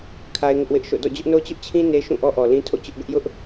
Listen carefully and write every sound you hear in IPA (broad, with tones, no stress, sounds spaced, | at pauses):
kʰ a˦ ɪ̯ ŋ ɪ˦ ʔ w ɪ˦ ʔ ʃ o̰˦˨ d ɔ̰˦˨ d͡ʑ ʊ˦ ʔ n o˦ t͡ɕ ʊ˦ ʔ t͡ɕʰ ĩ˦ n e˦ ʃ ũ˦˨ ʔ ɔ˦ ʔ ɔ˨ l ĩ˦ tʰ o̰˦˨ t͡ɕ ʊ˦ ʔ ɡ ʊ˦ ʔ j ʊ˦ ʔ